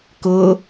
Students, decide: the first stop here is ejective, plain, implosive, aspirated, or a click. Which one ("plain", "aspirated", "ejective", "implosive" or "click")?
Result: plain